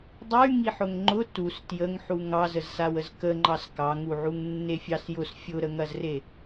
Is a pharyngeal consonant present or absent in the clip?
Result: present